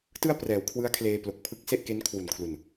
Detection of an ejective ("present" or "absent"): absent